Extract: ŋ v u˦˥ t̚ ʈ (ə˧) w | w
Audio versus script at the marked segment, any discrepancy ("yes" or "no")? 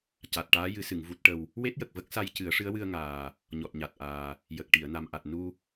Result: no